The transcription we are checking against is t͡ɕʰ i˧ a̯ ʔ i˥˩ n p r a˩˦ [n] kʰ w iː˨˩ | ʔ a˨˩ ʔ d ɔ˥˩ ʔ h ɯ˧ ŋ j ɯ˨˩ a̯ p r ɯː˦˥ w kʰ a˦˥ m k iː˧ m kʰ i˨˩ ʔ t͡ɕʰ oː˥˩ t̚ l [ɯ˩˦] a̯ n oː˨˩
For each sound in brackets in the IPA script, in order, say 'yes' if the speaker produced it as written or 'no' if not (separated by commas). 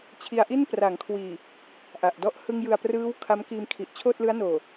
no, no